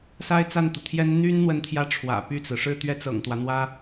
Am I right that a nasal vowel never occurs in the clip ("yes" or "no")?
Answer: yes